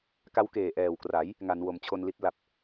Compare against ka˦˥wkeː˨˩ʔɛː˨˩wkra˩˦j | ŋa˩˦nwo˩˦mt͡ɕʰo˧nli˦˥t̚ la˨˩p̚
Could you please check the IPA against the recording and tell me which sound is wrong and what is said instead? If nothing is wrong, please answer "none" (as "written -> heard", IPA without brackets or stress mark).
none